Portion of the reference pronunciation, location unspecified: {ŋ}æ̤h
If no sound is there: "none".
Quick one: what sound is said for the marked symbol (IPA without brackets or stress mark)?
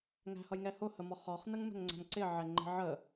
ŋ